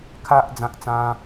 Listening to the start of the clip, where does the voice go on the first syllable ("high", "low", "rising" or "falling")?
high